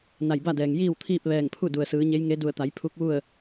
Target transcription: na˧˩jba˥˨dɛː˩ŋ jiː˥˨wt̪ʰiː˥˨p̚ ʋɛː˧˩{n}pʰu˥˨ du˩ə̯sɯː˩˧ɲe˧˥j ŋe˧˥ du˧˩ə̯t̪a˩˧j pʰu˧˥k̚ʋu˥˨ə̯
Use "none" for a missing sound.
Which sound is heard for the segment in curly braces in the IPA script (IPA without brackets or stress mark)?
ŋ